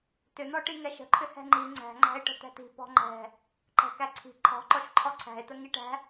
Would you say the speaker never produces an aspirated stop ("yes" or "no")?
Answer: no